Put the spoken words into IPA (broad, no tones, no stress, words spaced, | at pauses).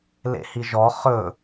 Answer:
lḛhiʒɔ χɵ